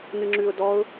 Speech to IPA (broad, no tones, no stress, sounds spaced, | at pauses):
n ɨ ŋ͡ǁ ʉ ʊ̯ d ɔ ʊ̯